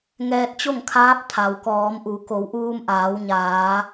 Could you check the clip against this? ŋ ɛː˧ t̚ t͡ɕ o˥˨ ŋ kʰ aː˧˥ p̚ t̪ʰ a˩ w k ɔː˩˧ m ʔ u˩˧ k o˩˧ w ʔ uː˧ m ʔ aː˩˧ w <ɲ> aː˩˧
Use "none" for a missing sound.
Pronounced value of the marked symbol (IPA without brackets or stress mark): ɲ